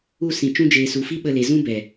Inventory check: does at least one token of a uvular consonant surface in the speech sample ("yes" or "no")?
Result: no